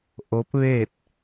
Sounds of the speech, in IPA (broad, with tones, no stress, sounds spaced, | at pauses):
ʔ o˧˥ p̚ ʋ eː˥˨ t̚